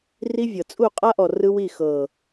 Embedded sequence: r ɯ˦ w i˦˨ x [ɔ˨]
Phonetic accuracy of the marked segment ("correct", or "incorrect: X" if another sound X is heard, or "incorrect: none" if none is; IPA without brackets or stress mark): incorrect: ɤ˨